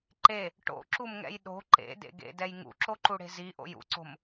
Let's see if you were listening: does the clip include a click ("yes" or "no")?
yes